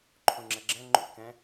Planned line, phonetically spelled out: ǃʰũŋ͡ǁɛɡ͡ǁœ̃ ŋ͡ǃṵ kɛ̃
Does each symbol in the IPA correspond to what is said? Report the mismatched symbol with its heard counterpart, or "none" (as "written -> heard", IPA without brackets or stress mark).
œ̃ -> ɛ̃